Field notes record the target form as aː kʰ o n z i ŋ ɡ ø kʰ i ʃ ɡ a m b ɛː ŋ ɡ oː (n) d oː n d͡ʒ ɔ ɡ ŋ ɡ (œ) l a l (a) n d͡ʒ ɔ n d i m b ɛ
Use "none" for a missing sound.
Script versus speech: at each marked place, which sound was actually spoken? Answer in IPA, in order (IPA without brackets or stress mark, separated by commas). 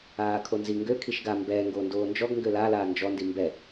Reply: n, ø, aː